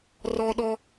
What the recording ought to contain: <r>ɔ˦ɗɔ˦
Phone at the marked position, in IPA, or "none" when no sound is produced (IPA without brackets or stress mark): r